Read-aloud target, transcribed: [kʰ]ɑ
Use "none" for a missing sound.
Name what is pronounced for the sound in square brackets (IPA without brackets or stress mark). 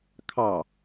kʰ